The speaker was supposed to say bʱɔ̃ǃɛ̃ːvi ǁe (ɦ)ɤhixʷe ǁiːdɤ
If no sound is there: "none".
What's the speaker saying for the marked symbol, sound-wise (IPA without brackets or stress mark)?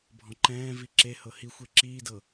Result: h